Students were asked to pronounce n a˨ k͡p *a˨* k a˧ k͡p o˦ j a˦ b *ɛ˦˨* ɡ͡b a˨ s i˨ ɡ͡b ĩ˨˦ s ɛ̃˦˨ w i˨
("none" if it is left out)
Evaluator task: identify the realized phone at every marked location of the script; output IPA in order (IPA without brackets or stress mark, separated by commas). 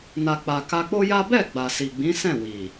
a˨, ɛ˦˨